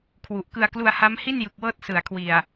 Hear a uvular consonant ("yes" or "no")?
no